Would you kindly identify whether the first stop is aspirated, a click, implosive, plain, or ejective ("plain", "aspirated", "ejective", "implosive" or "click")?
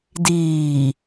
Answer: plain